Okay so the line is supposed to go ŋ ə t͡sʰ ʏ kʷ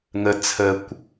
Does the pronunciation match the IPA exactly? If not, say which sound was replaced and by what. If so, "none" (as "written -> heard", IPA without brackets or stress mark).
ʏ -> ə